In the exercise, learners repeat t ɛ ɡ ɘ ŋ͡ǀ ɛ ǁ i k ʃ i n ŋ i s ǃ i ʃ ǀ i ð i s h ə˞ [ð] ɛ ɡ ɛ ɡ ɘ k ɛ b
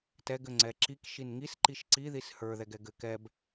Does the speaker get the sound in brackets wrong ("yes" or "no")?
no